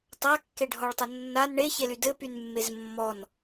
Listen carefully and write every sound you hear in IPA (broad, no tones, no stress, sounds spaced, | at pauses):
tˤ a kː e ɖʱ ɔ ɭ tˤ ə nː a n ɳ e ç e l y d ɘ p y n mː e z mː ɔ n